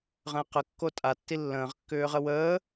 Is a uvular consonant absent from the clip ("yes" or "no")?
no